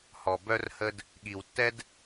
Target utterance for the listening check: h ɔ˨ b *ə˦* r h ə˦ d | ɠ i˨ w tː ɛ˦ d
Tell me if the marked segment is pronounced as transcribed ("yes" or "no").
no